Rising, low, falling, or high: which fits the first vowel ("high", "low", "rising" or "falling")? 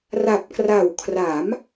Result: low